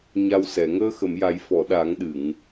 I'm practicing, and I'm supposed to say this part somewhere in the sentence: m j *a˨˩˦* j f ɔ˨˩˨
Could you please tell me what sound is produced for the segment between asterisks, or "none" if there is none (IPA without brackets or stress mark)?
a˨˩˦